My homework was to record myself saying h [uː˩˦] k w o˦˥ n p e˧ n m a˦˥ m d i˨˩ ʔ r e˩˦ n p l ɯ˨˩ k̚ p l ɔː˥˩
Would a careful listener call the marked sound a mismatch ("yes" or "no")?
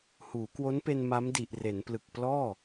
no